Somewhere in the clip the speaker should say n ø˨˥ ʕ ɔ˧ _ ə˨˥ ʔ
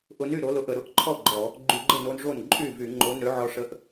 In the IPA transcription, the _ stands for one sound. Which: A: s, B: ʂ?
B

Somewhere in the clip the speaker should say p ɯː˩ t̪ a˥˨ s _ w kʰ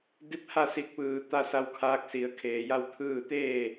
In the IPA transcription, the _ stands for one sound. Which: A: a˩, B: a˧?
B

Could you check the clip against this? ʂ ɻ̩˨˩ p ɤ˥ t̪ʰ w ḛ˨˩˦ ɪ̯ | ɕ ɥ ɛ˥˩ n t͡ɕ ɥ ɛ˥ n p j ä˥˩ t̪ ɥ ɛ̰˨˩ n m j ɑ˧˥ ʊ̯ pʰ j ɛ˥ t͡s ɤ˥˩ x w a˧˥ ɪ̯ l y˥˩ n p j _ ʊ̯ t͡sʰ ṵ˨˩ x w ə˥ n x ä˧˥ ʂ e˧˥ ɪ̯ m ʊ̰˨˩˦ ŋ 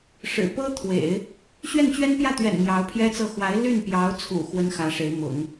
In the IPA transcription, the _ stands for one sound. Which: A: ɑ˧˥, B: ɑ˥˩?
A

